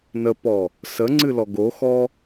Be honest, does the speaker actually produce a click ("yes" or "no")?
yes